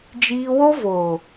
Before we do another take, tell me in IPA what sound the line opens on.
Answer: d͡ʒ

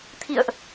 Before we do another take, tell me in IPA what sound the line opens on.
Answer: t̪ʰ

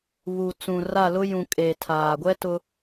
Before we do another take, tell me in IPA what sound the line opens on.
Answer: β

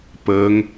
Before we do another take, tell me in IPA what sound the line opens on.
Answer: p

